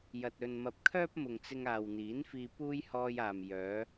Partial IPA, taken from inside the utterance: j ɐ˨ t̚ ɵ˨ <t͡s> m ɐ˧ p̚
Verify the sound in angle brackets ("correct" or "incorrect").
incorrect